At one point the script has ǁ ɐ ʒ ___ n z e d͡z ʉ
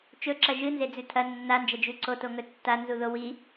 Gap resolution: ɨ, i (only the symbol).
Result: ɨ